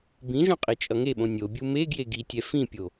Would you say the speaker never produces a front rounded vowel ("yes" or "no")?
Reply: yes